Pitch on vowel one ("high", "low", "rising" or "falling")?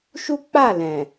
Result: high